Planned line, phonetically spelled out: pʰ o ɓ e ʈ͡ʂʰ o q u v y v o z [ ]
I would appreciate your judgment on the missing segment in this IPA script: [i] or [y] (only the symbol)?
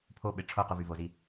i